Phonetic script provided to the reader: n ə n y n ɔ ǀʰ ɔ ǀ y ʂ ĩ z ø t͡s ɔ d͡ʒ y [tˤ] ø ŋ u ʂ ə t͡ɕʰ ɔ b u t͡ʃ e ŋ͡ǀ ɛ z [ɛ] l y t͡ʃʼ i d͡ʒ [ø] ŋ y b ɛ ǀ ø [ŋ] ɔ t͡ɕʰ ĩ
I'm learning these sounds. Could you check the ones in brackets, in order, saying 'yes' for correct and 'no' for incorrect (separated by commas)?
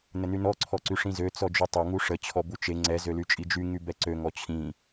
yes, no, no, yes